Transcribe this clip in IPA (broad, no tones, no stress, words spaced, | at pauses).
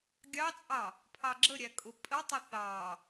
ɡʲɑt͡sʼɑ | pʰɑɡ͡ǁəɾʲæ kʼʊpʼətˤɪ θɑ